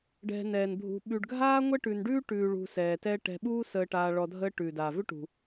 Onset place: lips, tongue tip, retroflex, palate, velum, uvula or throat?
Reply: retroflex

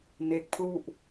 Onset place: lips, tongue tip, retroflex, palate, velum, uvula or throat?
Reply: tongue tip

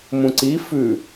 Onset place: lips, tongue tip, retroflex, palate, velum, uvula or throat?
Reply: lips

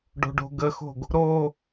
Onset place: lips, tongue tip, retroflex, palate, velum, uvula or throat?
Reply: retroflex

